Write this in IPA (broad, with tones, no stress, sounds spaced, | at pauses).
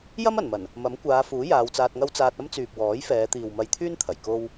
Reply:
j ɐ˥ m ɐ˨˩ n m ɐ˨˩ n | m ɐ˨˥ m kʷ aː˨˧ f uː˨˥ j aː˨˧ w t͡s aː˧ t̚ ŋ ɐ˥ w t͡s aː˧ t̚ ɐ˥ m t͡s yː˨ p̚ w ɔː˨˥ j f ɛː˨˧ t̪ iː˨ w m ɐ˧ j t̪ʰ yː˥ n t̪ʰ ɐ˨˩ j k o˧ w